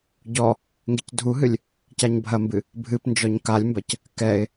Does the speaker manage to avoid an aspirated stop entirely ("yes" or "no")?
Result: yes